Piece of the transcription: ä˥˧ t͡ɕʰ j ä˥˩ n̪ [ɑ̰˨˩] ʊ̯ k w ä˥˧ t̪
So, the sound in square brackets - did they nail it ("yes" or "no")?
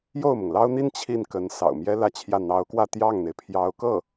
no